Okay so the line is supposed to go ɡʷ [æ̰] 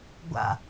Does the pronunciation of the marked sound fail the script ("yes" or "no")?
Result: yes